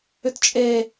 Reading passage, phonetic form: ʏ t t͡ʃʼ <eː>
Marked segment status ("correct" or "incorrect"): correct